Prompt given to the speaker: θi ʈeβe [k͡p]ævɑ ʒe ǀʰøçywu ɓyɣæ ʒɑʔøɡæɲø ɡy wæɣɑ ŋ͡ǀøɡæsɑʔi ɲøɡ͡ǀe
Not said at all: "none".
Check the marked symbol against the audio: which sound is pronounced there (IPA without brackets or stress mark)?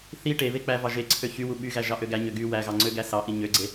k͡p